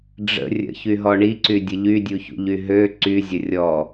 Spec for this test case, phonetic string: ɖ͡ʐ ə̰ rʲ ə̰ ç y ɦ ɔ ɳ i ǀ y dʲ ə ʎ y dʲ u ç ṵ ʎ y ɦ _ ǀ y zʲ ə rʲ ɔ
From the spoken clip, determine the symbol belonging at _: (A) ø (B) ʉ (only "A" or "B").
A